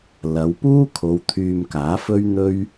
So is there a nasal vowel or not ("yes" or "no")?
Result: no